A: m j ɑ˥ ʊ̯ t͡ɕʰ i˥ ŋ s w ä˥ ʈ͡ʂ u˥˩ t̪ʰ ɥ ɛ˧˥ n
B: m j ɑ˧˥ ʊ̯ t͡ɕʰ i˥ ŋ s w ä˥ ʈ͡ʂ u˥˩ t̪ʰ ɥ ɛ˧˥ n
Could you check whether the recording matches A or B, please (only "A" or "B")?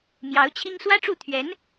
B